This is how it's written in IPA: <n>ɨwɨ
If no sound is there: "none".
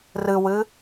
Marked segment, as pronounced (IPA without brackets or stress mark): r